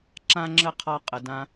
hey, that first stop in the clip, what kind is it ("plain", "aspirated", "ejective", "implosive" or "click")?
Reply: click